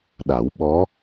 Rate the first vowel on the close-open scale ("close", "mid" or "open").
open